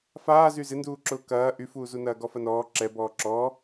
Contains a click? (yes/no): yes